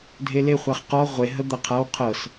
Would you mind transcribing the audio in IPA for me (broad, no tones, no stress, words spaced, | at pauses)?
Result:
dʱele χʷaχqɔ ʁʷe ɦəd̪ɐqʰaw qʰɤs